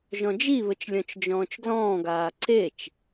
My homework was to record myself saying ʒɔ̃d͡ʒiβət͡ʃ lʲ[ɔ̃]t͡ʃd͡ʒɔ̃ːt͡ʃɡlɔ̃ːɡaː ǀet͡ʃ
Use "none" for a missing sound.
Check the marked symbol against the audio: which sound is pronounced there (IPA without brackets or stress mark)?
ɔ̃